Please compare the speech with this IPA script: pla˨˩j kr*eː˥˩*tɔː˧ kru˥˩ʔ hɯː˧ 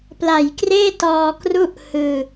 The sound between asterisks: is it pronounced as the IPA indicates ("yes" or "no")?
yes